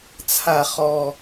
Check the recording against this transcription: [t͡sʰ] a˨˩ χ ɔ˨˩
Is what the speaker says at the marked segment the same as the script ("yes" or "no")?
yes